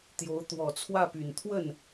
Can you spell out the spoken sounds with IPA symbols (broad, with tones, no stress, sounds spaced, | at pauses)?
t̪ j o˧˥ ʊ̯ t̪ w ɔ˨˩ t͡sʰ w ä˥˩ p y˨˩ n t̪ʰ w ə˥˩ n